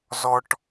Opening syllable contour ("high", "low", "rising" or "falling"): high